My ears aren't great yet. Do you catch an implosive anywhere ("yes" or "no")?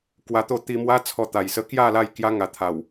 no